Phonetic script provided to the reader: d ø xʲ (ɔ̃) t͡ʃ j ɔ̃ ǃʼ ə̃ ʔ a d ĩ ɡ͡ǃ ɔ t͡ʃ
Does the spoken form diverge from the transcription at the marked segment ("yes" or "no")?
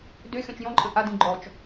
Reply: no